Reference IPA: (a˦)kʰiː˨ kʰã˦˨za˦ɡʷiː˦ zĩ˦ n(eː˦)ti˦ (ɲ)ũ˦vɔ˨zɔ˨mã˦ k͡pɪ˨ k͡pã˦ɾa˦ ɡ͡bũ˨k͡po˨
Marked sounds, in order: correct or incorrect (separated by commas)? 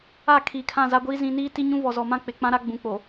incorrect, incorrect, correct